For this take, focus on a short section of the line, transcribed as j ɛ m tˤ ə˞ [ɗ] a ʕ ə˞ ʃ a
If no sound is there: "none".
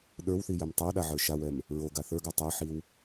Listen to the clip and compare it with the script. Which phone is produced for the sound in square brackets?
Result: ɗ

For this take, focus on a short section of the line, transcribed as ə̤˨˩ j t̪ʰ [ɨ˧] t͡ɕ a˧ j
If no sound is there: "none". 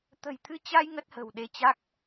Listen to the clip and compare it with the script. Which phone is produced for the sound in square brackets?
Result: ɨ˧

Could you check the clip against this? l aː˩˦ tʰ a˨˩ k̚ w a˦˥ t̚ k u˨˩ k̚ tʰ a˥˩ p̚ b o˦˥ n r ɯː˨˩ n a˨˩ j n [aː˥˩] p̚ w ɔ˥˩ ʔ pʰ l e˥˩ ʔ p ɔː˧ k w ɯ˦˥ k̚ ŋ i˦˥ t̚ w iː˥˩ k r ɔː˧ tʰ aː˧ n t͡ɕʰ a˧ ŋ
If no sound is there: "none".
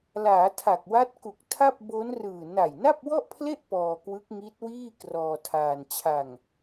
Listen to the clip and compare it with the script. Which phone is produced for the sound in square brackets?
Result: a˥˩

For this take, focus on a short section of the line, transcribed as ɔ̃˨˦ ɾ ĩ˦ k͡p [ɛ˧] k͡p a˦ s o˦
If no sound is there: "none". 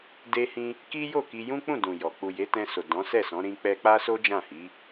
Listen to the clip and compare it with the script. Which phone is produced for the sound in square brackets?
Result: ɛ˦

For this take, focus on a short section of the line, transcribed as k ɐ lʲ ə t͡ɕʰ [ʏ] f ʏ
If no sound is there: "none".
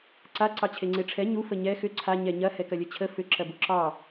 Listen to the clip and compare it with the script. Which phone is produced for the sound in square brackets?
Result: ə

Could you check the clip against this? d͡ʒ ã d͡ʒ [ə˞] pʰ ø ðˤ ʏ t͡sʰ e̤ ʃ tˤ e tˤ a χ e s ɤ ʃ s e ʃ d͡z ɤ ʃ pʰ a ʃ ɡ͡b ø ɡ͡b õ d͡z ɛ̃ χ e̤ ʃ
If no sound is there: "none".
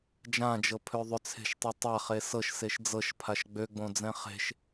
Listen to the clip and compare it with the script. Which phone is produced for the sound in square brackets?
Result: ɤ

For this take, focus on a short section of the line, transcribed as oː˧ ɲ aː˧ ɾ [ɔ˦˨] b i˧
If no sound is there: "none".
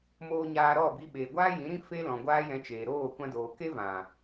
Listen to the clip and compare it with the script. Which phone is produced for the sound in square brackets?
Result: ɔ˦˨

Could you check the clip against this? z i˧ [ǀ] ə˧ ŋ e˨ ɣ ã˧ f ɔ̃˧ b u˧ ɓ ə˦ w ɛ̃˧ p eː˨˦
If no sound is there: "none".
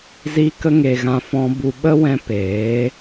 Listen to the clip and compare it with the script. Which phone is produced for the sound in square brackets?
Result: k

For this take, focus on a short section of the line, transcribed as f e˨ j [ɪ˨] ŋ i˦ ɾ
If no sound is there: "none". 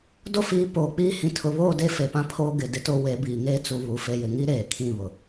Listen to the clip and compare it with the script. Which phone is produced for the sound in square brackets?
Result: ɪ˨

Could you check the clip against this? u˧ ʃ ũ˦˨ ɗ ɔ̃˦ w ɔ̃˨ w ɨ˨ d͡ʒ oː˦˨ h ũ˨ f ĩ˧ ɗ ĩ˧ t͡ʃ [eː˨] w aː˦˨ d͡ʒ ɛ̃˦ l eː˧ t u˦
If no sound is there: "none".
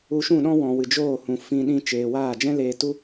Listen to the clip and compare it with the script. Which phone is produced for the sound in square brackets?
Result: eː˨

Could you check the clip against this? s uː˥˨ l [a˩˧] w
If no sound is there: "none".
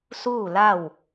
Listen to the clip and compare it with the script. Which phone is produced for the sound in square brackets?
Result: a˥˨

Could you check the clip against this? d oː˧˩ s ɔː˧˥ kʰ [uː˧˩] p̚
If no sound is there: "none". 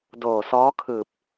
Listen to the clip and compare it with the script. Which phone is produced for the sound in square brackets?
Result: ɯː˧˩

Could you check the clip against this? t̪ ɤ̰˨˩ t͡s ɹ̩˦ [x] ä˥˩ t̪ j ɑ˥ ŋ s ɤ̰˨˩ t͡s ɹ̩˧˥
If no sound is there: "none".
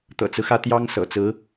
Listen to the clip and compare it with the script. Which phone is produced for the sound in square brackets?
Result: x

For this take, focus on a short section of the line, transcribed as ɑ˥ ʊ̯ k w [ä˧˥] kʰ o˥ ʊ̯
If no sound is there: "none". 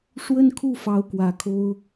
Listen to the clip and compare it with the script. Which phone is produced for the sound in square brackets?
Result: ä˨˩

